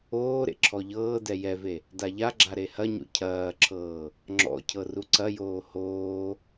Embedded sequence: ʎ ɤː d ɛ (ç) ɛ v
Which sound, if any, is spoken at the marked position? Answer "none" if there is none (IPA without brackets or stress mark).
j